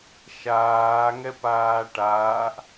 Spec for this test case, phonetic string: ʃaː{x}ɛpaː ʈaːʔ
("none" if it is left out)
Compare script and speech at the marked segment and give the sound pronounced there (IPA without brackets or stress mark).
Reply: ŋ